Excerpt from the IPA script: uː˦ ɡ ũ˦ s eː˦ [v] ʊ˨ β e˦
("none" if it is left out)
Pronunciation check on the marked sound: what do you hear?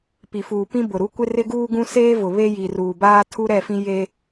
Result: v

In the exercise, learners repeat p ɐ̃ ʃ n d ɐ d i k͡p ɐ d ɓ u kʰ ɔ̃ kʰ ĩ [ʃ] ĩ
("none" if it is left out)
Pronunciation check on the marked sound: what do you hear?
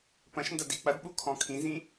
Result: z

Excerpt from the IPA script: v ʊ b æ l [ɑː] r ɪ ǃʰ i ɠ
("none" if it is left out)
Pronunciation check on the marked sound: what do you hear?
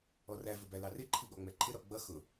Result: ɑ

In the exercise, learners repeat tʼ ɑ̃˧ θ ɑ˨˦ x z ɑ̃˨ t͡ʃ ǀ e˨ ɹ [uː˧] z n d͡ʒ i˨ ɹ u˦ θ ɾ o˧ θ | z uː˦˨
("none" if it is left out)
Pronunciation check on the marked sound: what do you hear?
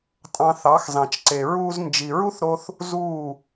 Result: uː˧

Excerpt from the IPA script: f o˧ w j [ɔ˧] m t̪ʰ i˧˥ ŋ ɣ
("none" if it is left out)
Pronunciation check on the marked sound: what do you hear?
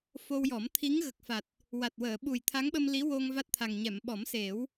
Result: ɔ˨˩˦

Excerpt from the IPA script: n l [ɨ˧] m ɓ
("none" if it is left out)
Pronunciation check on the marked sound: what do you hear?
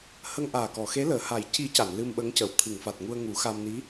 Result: ɨ˧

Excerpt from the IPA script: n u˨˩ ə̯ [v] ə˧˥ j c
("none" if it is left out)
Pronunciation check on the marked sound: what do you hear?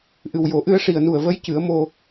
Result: v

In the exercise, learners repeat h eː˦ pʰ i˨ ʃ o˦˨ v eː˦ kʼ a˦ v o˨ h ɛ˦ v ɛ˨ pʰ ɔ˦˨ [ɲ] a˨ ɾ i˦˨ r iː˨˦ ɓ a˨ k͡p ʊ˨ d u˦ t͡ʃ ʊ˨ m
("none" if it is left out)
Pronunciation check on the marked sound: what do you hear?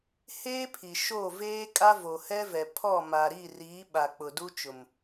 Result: m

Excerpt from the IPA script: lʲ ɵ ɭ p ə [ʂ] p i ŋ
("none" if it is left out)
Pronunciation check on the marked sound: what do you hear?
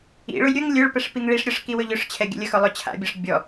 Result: ʂ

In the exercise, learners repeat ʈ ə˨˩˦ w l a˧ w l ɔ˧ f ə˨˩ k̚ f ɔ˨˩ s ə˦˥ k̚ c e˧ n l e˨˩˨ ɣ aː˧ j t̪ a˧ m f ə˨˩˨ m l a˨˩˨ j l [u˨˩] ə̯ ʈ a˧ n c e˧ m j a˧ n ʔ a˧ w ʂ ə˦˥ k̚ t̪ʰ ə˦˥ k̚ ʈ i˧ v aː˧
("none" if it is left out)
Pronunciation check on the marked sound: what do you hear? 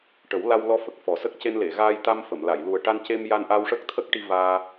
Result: u˨˩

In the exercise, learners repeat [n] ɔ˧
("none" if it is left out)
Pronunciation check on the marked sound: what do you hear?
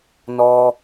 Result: n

